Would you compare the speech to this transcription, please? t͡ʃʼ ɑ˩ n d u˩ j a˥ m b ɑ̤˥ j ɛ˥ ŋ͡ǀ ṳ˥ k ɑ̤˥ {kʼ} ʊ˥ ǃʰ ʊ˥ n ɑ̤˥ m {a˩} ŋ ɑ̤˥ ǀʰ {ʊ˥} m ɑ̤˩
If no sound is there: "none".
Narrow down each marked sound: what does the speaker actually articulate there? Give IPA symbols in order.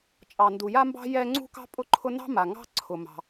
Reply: pʼ, a˩, ʊ˩

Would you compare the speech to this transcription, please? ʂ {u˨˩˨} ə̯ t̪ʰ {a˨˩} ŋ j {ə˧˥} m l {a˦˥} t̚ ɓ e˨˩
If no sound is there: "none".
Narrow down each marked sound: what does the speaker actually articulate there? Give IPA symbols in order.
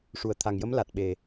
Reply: u˨˩˨, a˨˩, ə˧˥, a˨˩

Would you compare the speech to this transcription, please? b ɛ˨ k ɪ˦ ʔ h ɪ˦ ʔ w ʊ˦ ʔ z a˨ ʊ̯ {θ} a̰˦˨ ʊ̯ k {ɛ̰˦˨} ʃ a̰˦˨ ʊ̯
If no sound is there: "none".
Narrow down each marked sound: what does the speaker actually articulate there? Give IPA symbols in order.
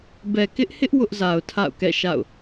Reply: tʰ, ɛ̰˦˨

